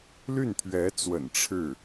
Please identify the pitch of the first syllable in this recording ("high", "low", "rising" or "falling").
falling